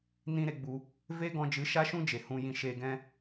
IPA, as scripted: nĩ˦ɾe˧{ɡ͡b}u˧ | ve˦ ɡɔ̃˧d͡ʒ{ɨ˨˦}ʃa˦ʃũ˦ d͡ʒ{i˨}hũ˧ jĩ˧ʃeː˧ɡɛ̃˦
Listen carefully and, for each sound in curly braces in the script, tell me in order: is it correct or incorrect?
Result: correct, correct, incorrect

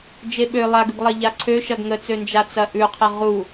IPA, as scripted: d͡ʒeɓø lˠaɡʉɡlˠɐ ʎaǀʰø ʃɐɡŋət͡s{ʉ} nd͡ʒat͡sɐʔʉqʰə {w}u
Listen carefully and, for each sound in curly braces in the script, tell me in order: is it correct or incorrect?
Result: incorrect, incorrect

